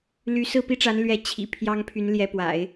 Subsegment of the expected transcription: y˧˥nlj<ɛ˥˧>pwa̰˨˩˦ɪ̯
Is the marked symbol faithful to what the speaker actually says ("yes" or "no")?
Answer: no